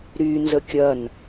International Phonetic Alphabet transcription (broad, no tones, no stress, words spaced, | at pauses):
ɾy nzəkʲɐn